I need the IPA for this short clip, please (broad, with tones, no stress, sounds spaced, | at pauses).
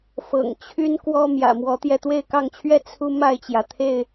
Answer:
f ɤ̰˨˩ ŋ t͡ɕʰ y˦ n k w ɔ˦ m j ä̰˨˩ m w ɔ˨˦ t̪ j ɛ˧ t̪ w e˥˨ ɪ̯ k ɑ˥˨ ŋ t͡ɕʰ ɥ ɛ˥˨ t͡sʰ u˦ m a˥˨ ɪ̯ t͡ɕ j ä˩ t̪ʰ e˥˨ ɪ̯